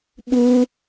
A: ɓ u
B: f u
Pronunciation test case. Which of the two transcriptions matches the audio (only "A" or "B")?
A